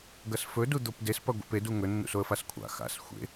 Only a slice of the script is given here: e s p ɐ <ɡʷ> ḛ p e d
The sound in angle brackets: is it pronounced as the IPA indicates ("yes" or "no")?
yes